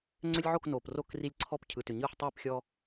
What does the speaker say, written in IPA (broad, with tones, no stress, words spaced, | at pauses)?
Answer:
ŋ͡ǀʏ˦lʲʕo˥˨k noː˩pro˥˨kri˦lʲǀʰɔ˥˨p cʰɯ˩tʏ˩ɲɯː˥˨ħ tˤiː˥˨pxʲɔ˦